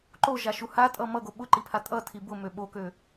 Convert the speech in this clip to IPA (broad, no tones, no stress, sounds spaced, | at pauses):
ǃ o ʒ a ʃ u h a tʼ ʌ m ʌ ɡ o ɓ ʊ ǃ i pʰ a tʼ ʌ tʰ i b ʊ m ø ɓ o k ø